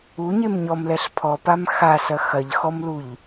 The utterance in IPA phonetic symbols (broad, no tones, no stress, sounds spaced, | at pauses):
u ɲ e m ɲ ɔ m l ɛ ɬ pʰ ɔ p a m x a s ɐ x ɐ ʎ x ɔ m l u ʎ